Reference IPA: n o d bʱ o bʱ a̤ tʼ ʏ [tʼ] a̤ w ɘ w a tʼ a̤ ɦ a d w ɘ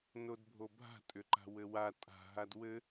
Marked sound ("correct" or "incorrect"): incorrect